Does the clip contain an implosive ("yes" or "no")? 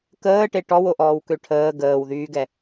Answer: no